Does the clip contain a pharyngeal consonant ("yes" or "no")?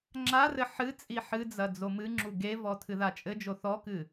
yes